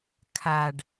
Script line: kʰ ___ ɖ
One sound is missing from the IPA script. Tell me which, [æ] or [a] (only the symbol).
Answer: a